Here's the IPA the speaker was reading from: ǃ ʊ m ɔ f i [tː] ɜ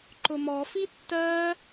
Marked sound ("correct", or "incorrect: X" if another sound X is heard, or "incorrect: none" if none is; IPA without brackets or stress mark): correct